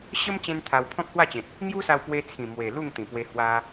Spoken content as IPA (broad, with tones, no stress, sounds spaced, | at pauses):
ɕ ə˦ m t͡ɕ ẽ˦ n t̪ʰ a˧ w pʰ ɔ̃˦ k̚ h w a˥˧ t͡ɕ ẽ˨ t̚ | ŋ j u˦ s a˧ w p w e˧ t͡sʰ ĩ˨˩ m w e˨˩ l u˥˧ ŋ t̪ ĩ˨˩ p w e˧ h w a˧